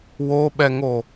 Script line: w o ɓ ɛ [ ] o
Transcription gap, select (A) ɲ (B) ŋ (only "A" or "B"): B